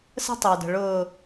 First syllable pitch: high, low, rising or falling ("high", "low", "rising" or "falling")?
high